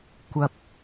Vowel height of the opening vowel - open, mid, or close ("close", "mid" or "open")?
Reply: open